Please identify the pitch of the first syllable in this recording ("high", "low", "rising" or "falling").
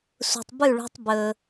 low